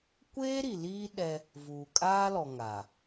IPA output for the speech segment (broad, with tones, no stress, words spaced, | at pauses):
kʷeː˦ ɾi˨liː˦ ɗɛ˦ | vuː˨kʼaː˦lɔ˨ ŋa˨